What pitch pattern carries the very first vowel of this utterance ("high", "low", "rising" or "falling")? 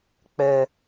high